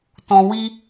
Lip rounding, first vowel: rounded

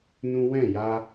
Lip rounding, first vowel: rounded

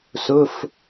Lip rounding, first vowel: rounded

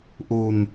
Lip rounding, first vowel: rounded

